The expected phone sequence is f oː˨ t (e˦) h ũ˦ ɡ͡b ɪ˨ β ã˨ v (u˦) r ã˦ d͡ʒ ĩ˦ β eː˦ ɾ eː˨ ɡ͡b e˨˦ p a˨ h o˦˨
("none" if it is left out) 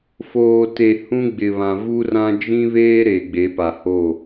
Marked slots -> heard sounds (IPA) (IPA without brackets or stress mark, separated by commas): e˨, u˦